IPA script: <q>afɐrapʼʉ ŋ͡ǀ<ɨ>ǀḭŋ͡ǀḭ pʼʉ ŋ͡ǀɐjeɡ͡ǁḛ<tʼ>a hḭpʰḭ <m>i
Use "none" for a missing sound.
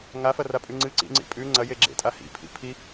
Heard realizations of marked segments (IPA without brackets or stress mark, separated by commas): ŋ, ɨ, tʼ, pʰ